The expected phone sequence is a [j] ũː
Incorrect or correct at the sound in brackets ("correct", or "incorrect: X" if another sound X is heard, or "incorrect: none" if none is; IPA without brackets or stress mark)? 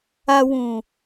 incorrect: w